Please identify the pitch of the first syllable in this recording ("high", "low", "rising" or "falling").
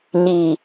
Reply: low